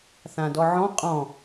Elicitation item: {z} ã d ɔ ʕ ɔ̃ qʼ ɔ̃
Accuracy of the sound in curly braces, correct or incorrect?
incorrect